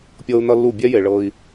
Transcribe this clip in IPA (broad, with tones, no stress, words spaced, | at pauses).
pʲɤ˦u̯nʌ˦lːu˦˨ bʲɛ˦je˨ ɭɤ˦i̯